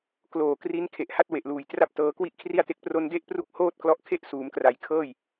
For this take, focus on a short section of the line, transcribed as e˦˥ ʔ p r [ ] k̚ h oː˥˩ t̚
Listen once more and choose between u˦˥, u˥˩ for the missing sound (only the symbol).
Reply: u˦˥